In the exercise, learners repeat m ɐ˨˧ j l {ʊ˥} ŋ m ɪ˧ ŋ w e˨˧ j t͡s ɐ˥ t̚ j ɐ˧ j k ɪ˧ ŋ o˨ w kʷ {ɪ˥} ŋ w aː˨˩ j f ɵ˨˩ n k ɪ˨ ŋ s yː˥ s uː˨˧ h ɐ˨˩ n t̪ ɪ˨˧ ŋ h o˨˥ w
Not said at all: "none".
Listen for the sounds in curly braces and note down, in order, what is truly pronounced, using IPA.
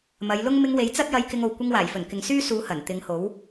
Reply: ʊ˥, ɪ˧

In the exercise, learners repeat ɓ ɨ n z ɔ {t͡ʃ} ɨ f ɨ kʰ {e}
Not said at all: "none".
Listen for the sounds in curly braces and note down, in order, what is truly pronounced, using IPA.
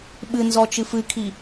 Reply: t͡ʃ, i

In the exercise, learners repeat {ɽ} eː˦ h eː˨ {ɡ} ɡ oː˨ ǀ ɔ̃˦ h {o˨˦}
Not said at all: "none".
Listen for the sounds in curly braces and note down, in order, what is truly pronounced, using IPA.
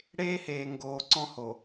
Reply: ɽ, ŋ, o˨

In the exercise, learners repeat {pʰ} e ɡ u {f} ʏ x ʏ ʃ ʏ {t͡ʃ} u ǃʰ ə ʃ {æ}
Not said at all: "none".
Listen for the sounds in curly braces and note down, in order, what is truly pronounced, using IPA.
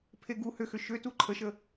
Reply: pʰ, h, t, ə

